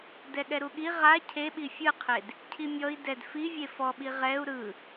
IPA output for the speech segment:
d ɛ ɠ ɛ ɾ u ɠ i ʁ a cʰ e ɓ i fʲ ɯ qʰ e d | cʰ i mʲ ɔ i̯ d ɛ d f i vʲ e f ɔ ɓ i ʁ ɛ u̯ ɾ ɯ

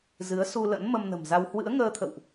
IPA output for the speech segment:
z ɨ˨˦ ə̯ s u˧ l ə̰˧˥ n m ə˧ m n ə̤˨˩ m z a˧ w h w ɨ̰˧˥ ə̯ ŋ əː˧ t̪ʰ ə̰˧˨ w ʔ

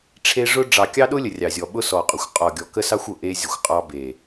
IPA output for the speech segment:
ʈ͡ʂʰ e˦ ʐ ʊ˦ ɖ͡ʐ ɑ˨ kʲ ɑ˦ ɗ ʊ˦ lʲ ə˨ rʲ ɑ˨ zʲ ɔ˨ ɓ ʊ˦ s ɔ˨ qʼ ʊ˨ xʷ qʼ ɔ˨ ɡʲ ɔ˨ k ə˦ s ɑ˦ xʷ ʊ˨ ʔ e˦ zʲ ə˨ xʷ qʼ ɑ˦ b e˨

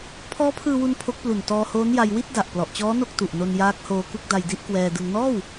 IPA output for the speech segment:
pʰ ɔː˦˥ pʰ ɯː˧ w u˧ n pʰ o˦˥ k̚ p l u˨˩ n t ɔː˧ h oː˦˥ n j a˧ j w i˥˩ t̚ d a˨˩ ʔ p l ɔ˨˩ ʔ t͡ɕ ɔː˦˥ n o˥˩ k̚ t u˨˩ ʔ n o˧ n j aː˦˥ k̚ h oː˧ k u˥˩ k̚ d a˧ j d i˥˩ ʔ k w ɛː˧ d ɯ˧ ŋ n ɔː˥˩ w

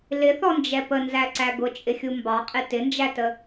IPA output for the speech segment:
l ɪ θ ɔ n d͡ʒ ɛ p ə n z æ ǀ æ ɡ ʊ t͡ʃʼ ɪ xʲ u m b ɑ qʼ ɪ t ɪ n d͡ʒ æ t ə

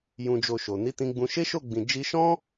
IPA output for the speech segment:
j ũ˨ d͡ʒ o˨ ʃ o˨ n i˨˦ t ĩ˧ ɡ͡b ũ˧ ʃ e˦ ʃ o˦˨ ɡ͡b ĩ˨ d͡ʒ i˧ ʃ ɔ̃˦

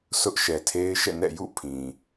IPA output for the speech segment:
sʰ ʊ˦ ʔ ʃ ɛ˨ tʰ e˦ ɪ̯ ʃ ɛ̰˦˨ n ɛ̰˦˨ j ṵ˦˨ pʰ ĩ˨

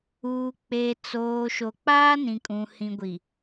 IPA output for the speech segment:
uː˨ k͡p e˨ t͡s oː˨ ʃ o˨ k͡p aː˦ n ĩ˨ kʼ ũ˨ h ĩ˨ ɡʷ i˨

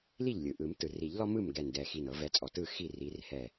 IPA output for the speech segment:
l i˥˩ ʎ lʲ ɯ˩ ʔ ɯ˨˩˦ m t ɯ˩ r i˨˩˦ ʎ l ɔ˦ m ɯ˥˩ m ɡ ɛ˧˩ n d ɛ˧˩ x i˧˩ n ɤ˨˩˦ v ɛ˨˦ t͡sʼ ɔ˩ t ɯ˥˩ x i˥˩ r i˨˦ r h ɛ˧˩

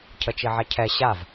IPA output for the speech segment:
cʰ ə t͡ʃ i ʕ ɛ cʰ ɛ ɕ a v

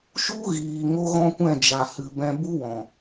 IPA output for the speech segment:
ʃ u˦ ɣ iː˨ ŋ o˦ ɣ ɔ̃˦ kʷ ɛ̃˦˨ d͡ʒ a˨ h ɨ˨ b ɛ̃˧ b u˦ w ɔ̃˨

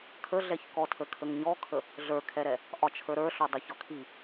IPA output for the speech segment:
kʰ ə ɮ ɛ ç k ɔ tʰ ə kʰ ə ŋ ɲ ɔ kʰ ə | ɮ ə˞ kʰ ɛ ɾ ɛ | ʔ ɒ t͡ʃʰ ə˞ ɾ ə˞ ɬ ɔ dˤ ə ç ɒ kʰ i

